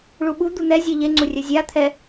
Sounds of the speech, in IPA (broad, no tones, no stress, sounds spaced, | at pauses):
ɭ u ɓ u d̪ u n̪ ɛ zʲ e ʎ e ŋ͡ǀ u rʲ œ zʲ a t̪ʰ ɛ